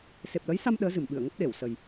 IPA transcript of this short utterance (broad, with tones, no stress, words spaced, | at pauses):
se˨˩p̚lə˨˦jsa˧m ɗəː˨˦zɨ˧˩mɓɨ˧˩ə̯ŋə˦˥p̚ ɗe˧˩wsə˨˩j